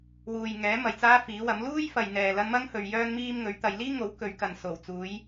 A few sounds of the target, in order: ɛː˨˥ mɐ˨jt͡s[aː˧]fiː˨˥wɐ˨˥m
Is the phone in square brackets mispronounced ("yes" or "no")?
yes